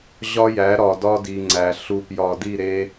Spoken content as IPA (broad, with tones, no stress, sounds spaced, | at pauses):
ʑ ɒ˦ j æ˨˦ ɾ ɒ˨ d ɒ˦ d i˨ ŋ͡ǀ æ˨ ɬ u˨ p j ɒ˨ d i˦˨ ɾ e˦